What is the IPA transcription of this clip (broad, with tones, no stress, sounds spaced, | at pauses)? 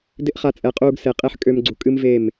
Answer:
d ɪ˦ ʔ χ a˧ t͡sʼ ɛ˨˦ qʼ uː˧ ɡ s e˨ qʼ e˦ ħ kʼ ø˧ m ɡ͡ǀ u˨ kʼ ɨ˦ m v e˦˨ m